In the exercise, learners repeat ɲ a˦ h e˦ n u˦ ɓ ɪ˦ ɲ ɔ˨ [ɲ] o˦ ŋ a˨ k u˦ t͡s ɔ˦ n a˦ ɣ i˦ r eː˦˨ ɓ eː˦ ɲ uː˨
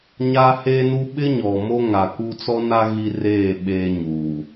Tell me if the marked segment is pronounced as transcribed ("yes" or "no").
no